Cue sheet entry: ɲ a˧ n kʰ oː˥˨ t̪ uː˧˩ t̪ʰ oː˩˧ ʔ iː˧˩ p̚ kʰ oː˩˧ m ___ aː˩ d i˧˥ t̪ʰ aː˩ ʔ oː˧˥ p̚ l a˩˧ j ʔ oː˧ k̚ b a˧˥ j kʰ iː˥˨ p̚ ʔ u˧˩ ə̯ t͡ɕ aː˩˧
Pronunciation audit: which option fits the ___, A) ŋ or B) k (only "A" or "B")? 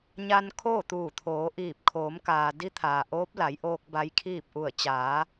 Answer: B